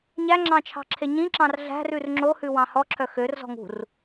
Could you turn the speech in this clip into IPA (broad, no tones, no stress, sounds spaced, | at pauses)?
ɲ æ ŋ͡ǁ ɑ̃ t͡ʃʰ ɑ̤ ǁʰ e ɲ ĩ ǁ ɑ̃ r ɮ æ̤ r ʉ r ŋ͡ǁ o h ʉ w ɑ̃ h ɔ ǁʰ œ x ø r z ɔ̤ ŋ ṳ r